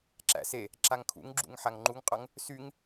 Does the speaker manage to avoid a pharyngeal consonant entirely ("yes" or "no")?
no